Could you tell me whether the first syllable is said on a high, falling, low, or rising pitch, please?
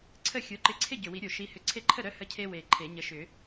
falling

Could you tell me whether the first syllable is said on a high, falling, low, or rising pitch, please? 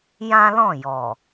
high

